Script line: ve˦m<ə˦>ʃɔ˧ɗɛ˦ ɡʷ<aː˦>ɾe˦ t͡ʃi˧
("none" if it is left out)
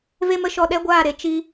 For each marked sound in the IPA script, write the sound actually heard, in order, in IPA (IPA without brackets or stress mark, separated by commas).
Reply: ə˦, aː˦˨